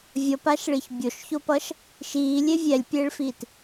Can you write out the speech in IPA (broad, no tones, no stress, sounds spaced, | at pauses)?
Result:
vʲ ʌ p a ʃ ɭ i ç bʲ o ʃ ç o p ʌ ʃ | ʃ iː lʲ e vʲ ɛ lʲ pʲ eː ɭ f iː t